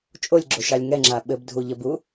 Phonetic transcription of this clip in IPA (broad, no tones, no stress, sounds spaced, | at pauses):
t͡ʃʼ o lʲ ɡ͡ǁ o ʃ ɑ lʲ ŋ ɛ ŋ͡ǁ a ɓ ɘ b dʱ u ʎ ə b u